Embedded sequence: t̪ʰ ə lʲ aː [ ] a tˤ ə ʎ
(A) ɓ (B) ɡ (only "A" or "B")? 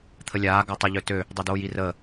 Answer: B